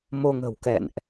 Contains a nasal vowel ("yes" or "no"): no